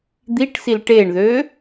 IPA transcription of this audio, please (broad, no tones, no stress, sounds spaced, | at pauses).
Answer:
d̪ i ʈ s i l ʈ e ɳ ð ø